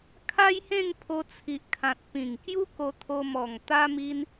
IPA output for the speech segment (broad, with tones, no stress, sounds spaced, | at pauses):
kʰ a˦ j h ẽ˥˧ ŋ pʰ o˧ t͡sʰ i˨ ʔ kʰ ã˨ t̚ p ĩ˨˩ ŋ k j u˦ k o˧ t̪ʰ o˧ m ɔ˨˩ ŋ t̪ a˦ m i˦ n